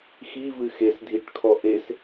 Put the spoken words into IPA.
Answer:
x i v ɨ x e s dʱ i ʈ kʰ ɔ ʔ e s

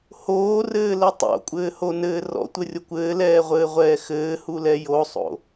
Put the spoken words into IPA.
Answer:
h oː r ɘː l ɘ tˤ o̰ kʷʼ ɘː h o n ɘː r ɔ̰ tʷ ɘ rʲ o kʷ ɘː l ɛː ʁʷ ɘː ʁʷ ɛː x ɘː h u l ɛ j o sˤ o̰

